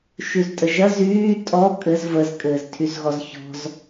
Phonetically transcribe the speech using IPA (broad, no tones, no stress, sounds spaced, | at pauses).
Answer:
ʃ y z tʼ ə ʒ ɐ z yː tʼ ɔ kʼ ɘ z v ə z kʼ ɘː z tʰ y z ɣ ɔ z ç ɔ̤ z